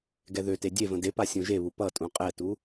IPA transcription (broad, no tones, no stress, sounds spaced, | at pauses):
ɡ ɛ ð ø t e dʲ e v ə̃ d e p a sʲ ũ ʒ e β u p ʌ tʼ ũ qʼ ɛ t u